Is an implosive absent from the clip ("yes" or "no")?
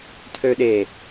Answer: no